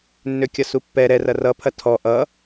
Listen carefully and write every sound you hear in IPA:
nː ø kʲ ʌ s u pː ɛ ɾ ɛ r ɐ r ʌ pʰ ɐ tʰ ɔ ʔ ʌ

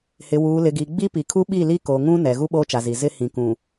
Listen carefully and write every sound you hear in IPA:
h ɪ˨ w uː˨ l ɪ˨ ɡ i˨ ɡ͡b i˦ p i˨ kʰ u˦ ɓ i˦˨ l i˦ k o˨ ŋ ũ˦ n ɛ˨ ɣ u˦ ɓ oː˦ t͡ʃ a˨ z i˨ z ɪ˦ h ĩ˨ k ũ˨

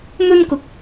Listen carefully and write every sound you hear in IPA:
n̪ ɵ˥ n k ʊ˧ k̚

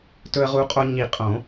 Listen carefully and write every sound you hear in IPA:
t ɵ˧ ə̯ ʁ u˧ qʼ o˧ ɲ i˨˩˦ qʼ õ˨˩˦

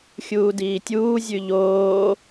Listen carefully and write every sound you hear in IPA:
xʲ uː d iː tʲ uː zʲ ʉ ʎ oː

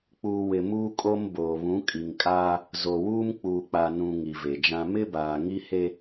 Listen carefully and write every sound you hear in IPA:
k͡p uː˨ w ɪ˨ m uː˦ kʼ o˦ m b oː˨ β ũ˨˦ kʼ i˨ ŋ kʼ aː˦ | z o˨ w uː˦ m k͡p uː˨ k͡p a˨ n ũ˨ ŋ i˨ v e˨ d͡ʒ ã˦ m ɪ˦ b aː˨ ŋ i˦ h e˦

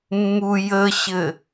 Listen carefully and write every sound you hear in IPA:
mː u j ə ɕ ɘ

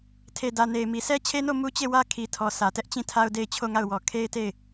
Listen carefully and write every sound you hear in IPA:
tʰ e˨ d ä˨ n e˨ ɪ̯ m i˨ sʰ ɛ˦ t͡ɕʰ e˦ n o˦˨ m u˦ t͡ɕ e˦˨ w ä˦ kʰ i˨ tʰ ɔ˨ sʰ ä˨ t ɛ˦ ʔ t͡ɕ ĩ˦˨ tʰ a˦ ʊ̯ d e˦˨ ɪ̯ t͡ɕʰ o˦˨ ŋ a˦˨ ʊ̯ w ɔ˨ kʰ e˦ ɪ̯ t e˦˨ ɪ̯

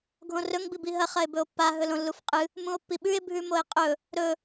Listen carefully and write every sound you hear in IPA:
ɡʱ õ r ɵ ŋ b i b i ɦ ɐ χ ɐ e̯ b ɵ o̯ pː a ɦ ɵ l õ lː u f qʼ ɨ | m ũ o̯ pː i ɓ ʉ e̯ bʱ ʉ m o e̯ qʼ ɵ | ɾ ɵ

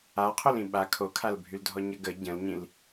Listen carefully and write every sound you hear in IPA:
a qʰ o l ĩ ɓ a kʰ o kʰ a l bʱ y l dʱ ɔ ɲ ə ɡ ə ɟ ə̃ l ɲ ĩ l

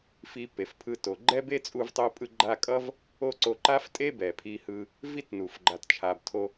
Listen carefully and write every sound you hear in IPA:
f i˧ p e˩ f pʰ ɯ˧ t o˩ ɡ͡ǃ ɛ˥ b e˥ t͡sʼ u˧ v tˤ o˧ pʼ ɯ˧ ɡ͡ǃ a˧ kʼ ʌ˥ v | o˥ ǀ o˧ ǃ a˥ f tʼ e˥ b ɛ˩ pʰ i˧ h ɯ˧ | v i˥ t n u˩ f ɡ͡ǃ a˩ t t͡ʃʰ a˩ b tʰ o˧

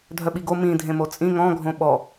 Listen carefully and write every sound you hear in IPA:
dʱ œ ɓ i ɡ o m ĩ dʱ ẽ m o t͡sʼ ĩ ŋ ɔ̃ ɡʱ õ ɓ ɔ

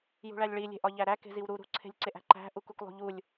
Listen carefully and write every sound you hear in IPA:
j ṳ ɭ æ lʲ ɭ i lʲ e̤ ʔ ɒ ʎ æ ɾ æ k e̤ z i w ɾ u ɾ ṳ ǀʰ e̤ lʲ ǀ e ʔ æ̤ ǃ æ̤ ʔ u k u k lˠ ṳ ʎ u lʲ

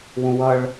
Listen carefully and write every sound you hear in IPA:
w ũ w ʌ ɭ

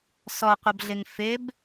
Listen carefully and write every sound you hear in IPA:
s ɔ qʷ ʌ b ɮ ɪ ŋ f ɪ b

